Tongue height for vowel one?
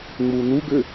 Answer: high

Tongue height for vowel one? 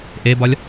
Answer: mid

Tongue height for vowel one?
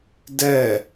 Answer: mid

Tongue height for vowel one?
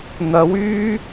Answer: low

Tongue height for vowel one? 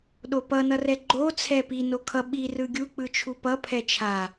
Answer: mid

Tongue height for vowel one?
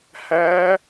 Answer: low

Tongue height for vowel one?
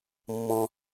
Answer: mid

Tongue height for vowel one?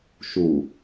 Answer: high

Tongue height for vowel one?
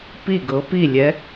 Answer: high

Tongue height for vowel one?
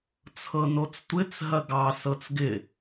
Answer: mid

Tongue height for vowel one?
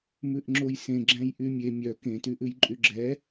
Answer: high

